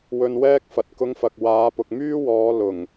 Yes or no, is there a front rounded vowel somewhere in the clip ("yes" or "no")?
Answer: yes